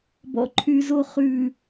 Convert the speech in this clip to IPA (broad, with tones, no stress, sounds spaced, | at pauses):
b ɔ̰˨ ǃʰ y˨ z o˦˨ χ ʉː˨